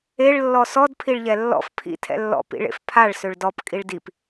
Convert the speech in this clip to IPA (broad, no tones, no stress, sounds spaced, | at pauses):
e ɭ lː ɔ s ɔ d pʰ i ɭ ʎ ɛ lː ɔ̰ f pʰ ḭ tʰ ɛ̰ lː ɔ̰ p ḭ ɭ ḛ f pʰ a ɭ s ø ɭ d ɔ p kʼ i ɭ d i p